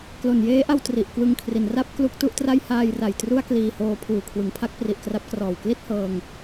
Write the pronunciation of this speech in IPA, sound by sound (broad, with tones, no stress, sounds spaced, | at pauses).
k l o˨˩ n j eː˦˥ ʔ a˧ w t r i˨˩ ʔ k w ɯ˧ ŋ kʰ r i˩˦ n r a˥˩ p̚ k l u˥˩ k̚ t u˥˩ ʔ t r a˥˩ j h aː˧ j r a˨˩ j t r u˥˩ a̯ k l iː˧ h oː˧ pʰ uː˨˩ kʰ w ɯ˩˦ ŋ pʰ a˦˥ k̚ p r i˨˩ ʔ k r a˦˥ p̚ k r ɔː˨˩ w k l i˥˩ t̚ h ɤː˧ ŋ